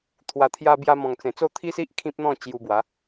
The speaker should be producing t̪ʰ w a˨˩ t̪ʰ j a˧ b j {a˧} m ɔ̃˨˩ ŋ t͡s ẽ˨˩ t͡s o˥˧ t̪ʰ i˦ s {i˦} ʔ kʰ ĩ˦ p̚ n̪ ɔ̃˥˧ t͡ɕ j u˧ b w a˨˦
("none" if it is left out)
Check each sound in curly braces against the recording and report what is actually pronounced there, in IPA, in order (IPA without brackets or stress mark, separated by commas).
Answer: a˧, i˦